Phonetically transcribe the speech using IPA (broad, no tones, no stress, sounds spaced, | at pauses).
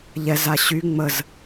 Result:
ʎ ɛ z a ɕ y ŋ͡m ə z